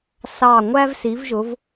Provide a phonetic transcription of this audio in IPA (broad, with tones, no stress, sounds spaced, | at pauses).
s ɑ˨˩ ŋʷ æ˥ v s i˨˦ v ʒ ʊ˨˦ v